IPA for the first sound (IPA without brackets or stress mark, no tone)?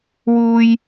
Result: w